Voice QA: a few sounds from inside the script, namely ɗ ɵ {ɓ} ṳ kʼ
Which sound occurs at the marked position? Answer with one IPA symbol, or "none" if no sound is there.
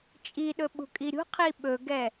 ɓ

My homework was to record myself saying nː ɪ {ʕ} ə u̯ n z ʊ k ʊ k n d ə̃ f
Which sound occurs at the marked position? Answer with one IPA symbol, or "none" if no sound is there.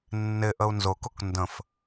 ʔ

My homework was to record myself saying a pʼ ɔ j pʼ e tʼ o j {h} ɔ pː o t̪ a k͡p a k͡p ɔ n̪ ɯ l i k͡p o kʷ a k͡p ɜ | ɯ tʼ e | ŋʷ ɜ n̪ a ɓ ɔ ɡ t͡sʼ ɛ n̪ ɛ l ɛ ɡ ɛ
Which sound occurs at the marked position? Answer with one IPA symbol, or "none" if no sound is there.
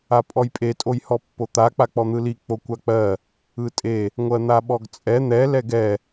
h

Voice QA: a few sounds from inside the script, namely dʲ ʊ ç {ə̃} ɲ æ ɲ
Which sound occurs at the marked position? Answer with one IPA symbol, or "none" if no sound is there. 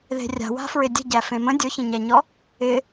ə̃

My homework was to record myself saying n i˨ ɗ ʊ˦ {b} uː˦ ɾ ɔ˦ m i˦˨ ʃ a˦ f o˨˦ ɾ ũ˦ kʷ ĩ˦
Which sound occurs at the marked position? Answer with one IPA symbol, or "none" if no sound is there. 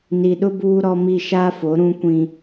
b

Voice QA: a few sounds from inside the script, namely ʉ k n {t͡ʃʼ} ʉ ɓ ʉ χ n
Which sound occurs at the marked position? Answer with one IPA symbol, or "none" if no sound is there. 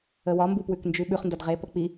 d͡ʒ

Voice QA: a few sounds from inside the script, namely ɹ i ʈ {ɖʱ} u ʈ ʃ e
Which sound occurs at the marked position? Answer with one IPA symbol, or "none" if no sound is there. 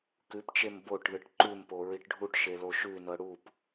ɖʱ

